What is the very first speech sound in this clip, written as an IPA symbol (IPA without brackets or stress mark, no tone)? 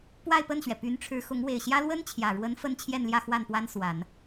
p